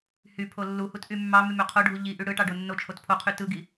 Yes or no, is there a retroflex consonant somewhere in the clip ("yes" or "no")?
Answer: yes